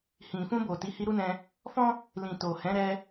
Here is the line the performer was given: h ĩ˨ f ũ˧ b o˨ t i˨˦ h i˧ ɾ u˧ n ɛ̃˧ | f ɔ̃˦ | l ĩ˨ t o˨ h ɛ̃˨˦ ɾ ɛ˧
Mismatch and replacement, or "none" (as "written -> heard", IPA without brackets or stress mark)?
u˧ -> u˦